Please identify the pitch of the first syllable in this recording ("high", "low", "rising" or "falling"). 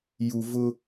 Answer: low